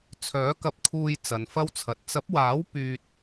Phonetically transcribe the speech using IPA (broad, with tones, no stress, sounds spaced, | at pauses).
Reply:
t͡sʰ œː˨˥ k ɐ˧ p̚ kʰ uː˧ j t͡s ɐ˨ n f ɐ˥ w t͡sʰ ɐ˨ t̚ t͡s ɐ˨˥ p̚ w aː˨˥ w p yː˨ t̚